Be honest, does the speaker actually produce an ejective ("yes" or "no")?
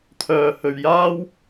no